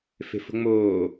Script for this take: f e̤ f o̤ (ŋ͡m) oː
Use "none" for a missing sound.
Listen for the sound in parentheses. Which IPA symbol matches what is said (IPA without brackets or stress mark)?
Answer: ŋ͡m